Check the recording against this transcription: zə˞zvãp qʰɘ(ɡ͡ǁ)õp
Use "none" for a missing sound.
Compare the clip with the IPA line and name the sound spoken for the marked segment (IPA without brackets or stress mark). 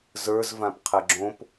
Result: ɡ͡ǁ